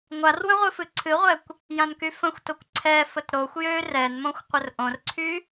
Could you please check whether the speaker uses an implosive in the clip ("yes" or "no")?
no